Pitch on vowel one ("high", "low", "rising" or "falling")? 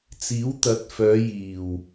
rising